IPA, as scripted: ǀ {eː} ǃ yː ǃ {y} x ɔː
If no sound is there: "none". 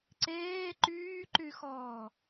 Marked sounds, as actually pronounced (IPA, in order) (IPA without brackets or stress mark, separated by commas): eː, y